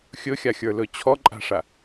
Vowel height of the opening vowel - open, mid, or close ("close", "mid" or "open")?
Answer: mid